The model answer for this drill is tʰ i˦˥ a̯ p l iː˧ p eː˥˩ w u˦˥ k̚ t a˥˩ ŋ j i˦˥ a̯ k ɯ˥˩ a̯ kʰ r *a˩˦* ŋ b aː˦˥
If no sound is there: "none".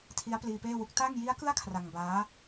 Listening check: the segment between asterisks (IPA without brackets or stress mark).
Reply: a˧